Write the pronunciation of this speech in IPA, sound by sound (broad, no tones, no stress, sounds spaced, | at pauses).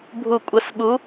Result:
bʱ u kʷʼ ə s ɓ u